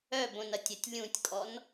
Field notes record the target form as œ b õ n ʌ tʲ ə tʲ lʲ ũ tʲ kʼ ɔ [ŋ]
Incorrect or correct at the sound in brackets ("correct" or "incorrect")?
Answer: incorrect